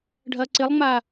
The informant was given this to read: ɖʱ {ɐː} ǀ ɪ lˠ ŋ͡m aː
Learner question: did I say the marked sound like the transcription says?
yes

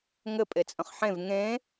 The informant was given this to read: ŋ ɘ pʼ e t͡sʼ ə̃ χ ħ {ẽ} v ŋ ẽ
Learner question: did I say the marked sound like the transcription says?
yes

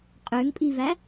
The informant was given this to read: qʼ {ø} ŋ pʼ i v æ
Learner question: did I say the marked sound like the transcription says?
yes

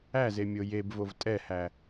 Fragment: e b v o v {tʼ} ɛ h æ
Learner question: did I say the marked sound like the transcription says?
yes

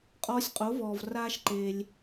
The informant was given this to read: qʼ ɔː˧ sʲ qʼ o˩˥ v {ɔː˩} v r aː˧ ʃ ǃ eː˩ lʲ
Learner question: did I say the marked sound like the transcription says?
yes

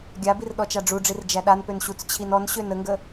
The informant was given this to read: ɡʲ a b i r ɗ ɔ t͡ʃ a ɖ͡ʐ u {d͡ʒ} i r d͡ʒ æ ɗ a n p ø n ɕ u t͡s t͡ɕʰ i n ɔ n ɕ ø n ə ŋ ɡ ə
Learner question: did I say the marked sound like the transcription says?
no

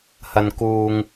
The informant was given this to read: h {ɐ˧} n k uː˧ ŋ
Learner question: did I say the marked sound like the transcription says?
yes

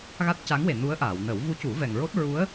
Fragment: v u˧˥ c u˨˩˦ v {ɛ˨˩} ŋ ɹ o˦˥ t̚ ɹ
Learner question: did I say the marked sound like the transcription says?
yes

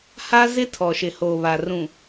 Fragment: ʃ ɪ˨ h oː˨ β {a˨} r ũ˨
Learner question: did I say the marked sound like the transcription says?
yes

